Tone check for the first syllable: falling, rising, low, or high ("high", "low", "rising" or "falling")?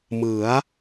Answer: rising